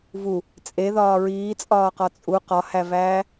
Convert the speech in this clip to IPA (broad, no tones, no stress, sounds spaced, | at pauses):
v u | t͡sʼ e ð ɒː ɹ iː t͡sʼ ɒː q ɒ t͡sʼ u q ɒ h æ v æː